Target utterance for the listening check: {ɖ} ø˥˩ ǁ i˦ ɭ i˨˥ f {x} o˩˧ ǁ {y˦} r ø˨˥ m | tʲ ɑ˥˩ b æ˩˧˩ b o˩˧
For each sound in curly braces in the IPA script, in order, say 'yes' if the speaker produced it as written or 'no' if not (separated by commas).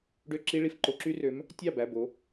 yes, no, yes